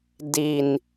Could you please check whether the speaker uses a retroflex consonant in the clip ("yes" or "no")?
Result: no